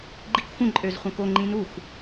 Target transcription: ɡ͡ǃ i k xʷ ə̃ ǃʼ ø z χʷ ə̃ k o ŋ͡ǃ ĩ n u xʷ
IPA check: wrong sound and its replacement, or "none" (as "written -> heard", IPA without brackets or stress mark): none